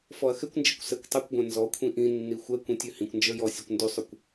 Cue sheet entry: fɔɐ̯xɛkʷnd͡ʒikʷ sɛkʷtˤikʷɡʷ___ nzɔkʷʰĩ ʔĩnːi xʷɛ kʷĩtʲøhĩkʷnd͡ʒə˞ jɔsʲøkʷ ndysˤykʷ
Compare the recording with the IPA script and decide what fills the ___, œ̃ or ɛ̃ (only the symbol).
ɛ̃